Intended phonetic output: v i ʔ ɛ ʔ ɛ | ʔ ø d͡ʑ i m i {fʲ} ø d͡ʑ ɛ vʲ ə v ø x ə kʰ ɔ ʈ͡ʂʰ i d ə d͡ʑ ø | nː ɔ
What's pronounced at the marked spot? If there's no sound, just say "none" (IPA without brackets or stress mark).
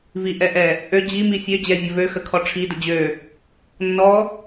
fʲ